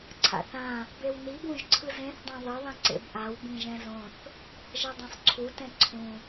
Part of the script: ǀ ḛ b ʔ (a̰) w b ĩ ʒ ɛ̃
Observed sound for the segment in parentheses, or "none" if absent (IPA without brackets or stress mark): a